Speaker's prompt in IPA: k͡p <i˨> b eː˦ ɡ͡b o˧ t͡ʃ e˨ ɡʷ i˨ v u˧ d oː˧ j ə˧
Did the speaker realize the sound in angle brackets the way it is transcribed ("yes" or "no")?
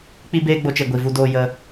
no